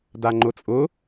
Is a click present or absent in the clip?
present